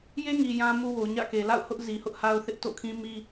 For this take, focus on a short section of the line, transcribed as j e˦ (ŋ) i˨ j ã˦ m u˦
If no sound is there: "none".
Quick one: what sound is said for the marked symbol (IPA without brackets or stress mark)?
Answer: ŋ